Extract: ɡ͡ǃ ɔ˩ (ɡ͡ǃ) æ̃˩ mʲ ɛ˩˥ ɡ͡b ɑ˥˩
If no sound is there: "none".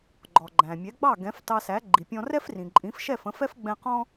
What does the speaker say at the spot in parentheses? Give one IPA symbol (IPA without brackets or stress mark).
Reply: ɡ͡ǃ